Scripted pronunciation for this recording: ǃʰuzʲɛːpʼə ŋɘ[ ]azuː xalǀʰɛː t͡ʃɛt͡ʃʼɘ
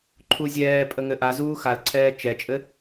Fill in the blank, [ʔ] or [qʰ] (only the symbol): ʔ